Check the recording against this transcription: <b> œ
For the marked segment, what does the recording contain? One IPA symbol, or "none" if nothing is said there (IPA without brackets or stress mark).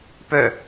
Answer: p